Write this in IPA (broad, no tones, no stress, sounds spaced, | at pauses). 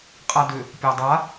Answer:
qʼ a d ʏ | pʲ a dˤ a